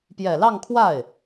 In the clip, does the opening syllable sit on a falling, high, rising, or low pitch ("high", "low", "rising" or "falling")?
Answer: low